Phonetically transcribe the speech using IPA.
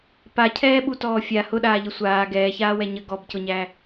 p a cʰ ɛː ɓ u t ɔː fʲ a h ʊ ɗ aː ʎ ə sʷ aː ɡ ɛː ç aː w ɛ ɲ ə ɡ ɔ b c ʊ ɲ æ

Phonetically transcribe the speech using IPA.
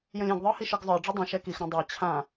j ə̃ lʲ ẽ ɡ ðˤ ə˞ h i ʃ ɨ ɡ zˤ ə˞ ɖ͡ʐ i dˤ ĩ ʃ ɛ k i x ɾ ã dˤ ə˞ t͡ɕʰ ã

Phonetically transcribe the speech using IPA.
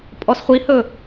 pʼ ɔ s χʷ i h ɵ

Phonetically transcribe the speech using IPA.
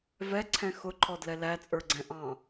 v ɛ ǀʰ ɛ̃ x ʊ ǃʰ ɔ d l ɛ l æ t͡sʼ ə˞ ɡ͡ǀ ɛ̃ ʔ ɑ̃

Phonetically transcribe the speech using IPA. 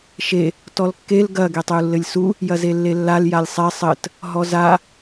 ʃ e | t ɔ l kː e l ɡ ɐ ɡ e tˤ e u̯ lː ɘ lʲ s u | j ɐ z e lː e lː a l j a lʲ sˤ ɛ sˤ ɘ t | ɦ ɔ z a

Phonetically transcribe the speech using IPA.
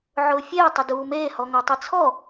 ʕ ʊː fʲ eː tˤ ɪ d uː m eː h ɔ ŋ o tˤ i t͡sʰ ɔ

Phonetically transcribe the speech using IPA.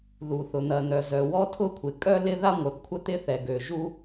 ð u˩ θ ʊ˩ n̪ ɐ˩ n̪ œ˩ z œ˩ w ɔ˥ tʰ ʊ˥ kʷʰ ɪ˩ kʼ œ˥ l ɪ˥ ð a˥ ŋʷ œ˩ p kʷʰ ə˥ t̪ ɪ˥ θ ɛ˩ ɡ ø˩ ʒ u˥

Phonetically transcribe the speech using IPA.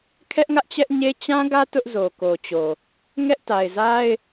kʰ ɛ˦ ʔ ŋ ä˦ ʔ t͡ɕ ɛ˦ ʔ ɲ e˦ t͡ɕ ã˦ ɡ ä˦ t ʊ˦ ʔ z o˨ k o˨ t͡ɕ o˨ | ŋ ɛ˦ ʔ t a˨ ɪ̯ z a˦ ɪ̯

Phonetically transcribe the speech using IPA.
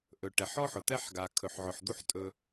ʔ ɵ˨ ʈ ɛ˨ ħ ɔ˦ ħ ʊ˨ t̪ ɛ˦ ħ ɡ a˨ kʰ ɵ˨ ħ ʕ ʊ˨ ħ d̪ u˦ ħ tʼ ɵ˦

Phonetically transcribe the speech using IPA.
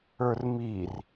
ə˞ r m i r

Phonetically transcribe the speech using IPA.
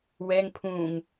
w ɛ ŋ pʰ ũ ŋ

